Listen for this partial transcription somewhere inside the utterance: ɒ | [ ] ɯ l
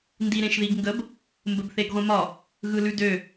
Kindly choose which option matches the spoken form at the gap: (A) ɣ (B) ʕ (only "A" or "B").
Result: A